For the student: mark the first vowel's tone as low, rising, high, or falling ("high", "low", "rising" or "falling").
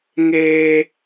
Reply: high